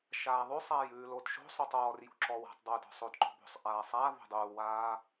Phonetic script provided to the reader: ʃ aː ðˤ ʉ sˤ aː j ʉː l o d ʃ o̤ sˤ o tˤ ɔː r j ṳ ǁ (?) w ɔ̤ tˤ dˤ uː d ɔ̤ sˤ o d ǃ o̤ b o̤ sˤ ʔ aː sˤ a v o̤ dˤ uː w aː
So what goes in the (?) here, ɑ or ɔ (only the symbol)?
ɔ